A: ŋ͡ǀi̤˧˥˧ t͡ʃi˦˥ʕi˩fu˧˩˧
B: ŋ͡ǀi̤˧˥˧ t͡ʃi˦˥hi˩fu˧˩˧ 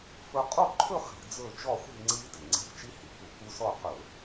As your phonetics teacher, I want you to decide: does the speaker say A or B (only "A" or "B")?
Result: B